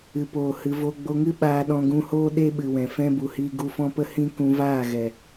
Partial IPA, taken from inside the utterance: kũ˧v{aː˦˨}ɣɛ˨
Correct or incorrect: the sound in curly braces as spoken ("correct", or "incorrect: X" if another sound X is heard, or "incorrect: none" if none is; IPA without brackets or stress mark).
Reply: correct